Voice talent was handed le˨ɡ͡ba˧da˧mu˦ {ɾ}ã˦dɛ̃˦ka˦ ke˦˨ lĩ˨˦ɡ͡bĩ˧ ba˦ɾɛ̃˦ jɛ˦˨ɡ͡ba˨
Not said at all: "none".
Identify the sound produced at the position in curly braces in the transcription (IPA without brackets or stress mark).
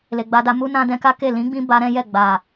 n